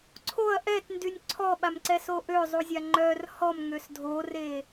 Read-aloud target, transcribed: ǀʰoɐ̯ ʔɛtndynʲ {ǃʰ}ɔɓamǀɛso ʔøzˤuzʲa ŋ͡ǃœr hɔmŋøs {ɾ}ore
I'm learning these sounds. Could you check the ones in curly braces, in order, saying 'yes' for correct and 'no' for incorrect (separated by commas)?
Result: no, no